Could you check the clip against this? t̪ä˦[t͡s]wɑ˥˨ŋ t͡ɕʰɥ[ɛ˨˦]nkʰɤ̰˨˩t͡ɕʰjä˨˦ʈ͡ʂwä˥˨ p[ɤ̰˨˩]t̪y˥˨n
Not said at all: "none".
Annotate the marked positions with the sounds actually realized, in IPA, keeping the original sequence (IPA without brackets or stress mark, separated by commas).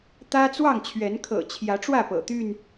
t͡s, ɛ˨˦, ɤ̰˨˩